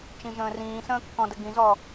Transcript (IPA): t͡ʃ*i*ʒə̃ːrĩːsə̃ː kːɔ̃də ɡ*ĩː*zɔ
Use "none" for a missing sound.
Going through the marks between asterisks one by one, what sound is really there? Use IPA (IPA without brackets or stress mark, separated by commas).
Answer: ĩ, ĩ